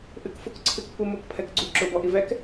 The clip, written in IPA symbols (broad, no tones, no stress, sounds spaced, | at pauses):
ʔ ɨ k f ʊ k ǀʰ ɨ k p u m ʊ k pʰ ɛ k ɡ͡ǀ u ǁ ʊ b ɔ ʔ i v ɛ k